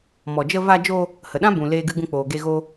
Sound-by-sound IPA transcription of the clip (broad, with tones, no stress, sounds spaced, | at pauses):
m ɔ˨ d͡ʒ ə˧ v a˧ d͡ʒ o˧ | h ə˨ ɗ ã˦ b ũ˨ l eː˦ ɡ ɨ˦ ɡ ũ˧ k͡p oː˨ ɡ e˧ ɣ o˦